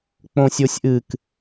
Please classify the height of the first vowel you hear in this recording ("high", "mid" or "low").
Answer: mid